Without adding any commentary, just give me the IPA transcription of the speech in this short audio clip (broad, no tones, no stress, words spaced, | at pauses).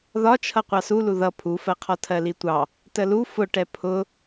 ðɒt͡ʃʰʌ qʷɑsulu ðʌ pʰufɜqʰɔ tʰɜlitʷɑ | təlu fʊʈɛ pʰʊ